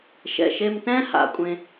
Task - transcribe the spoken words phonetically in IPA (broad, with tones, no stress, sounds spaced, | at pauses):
ʃ ɛ̰˩ ʃ e˧ m t ɛ̃˥ h a̰˩ kʷʼ ẽ˧